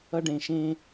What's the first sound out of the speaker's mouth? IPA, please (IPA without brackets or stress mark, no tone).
ʌ